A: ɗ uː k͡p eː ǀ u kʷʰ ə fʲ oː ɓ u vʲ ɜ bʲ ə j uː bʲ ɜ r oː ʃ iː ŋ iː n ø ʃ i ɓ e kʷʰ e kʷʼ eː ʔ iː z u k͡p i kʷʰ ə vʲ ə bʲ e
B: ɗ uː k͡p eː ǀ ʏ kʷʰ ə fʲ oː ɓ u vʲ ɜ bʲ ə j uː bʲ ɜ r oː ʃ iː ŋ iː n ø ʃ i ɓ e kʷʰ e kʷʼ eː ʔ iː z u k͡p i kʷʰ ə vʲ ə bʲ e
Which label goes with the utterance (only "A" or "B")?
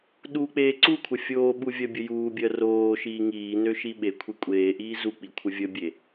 A